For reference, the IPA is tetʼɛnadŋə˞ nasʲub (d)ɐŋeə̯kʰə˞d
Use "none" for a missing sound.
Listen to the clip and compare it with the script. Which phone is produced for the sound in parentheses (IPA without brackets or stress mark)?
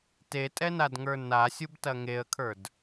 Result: t